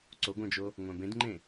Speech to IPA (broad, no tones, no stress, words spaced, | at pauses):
ǀoɡʷœ̃d͡ʒo | ŋʷœ̃bẽdŋ͡ǃẽ